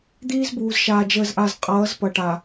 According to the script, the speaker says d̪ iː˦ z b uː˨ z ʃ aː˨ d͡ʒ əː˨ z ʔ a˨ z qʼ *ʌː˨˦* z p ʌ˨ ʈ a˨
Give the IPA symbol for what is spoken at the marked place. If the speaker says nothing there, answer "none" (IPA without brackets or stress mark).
ʌː˨˦